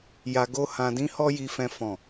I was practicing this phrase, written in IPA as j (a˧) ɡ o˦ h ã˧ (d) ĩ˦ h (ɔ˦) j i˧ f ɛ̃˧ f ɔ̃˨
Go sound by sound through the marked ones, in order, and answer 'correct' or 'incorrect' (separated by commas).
correct, correct, correct